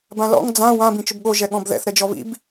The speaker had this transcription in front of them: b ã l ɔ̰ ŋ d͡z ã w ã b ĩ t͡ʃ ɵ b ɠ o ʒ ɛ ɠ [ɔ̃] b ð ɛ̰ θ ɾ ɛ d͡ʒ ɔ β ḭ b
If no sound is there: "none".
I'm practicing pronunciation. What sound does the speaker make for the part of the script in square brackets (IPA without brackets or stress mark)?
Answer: ɔ̃